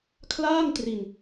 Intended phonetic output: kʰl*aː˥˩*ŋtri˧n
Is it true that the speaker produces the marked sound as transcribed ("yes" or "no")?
yes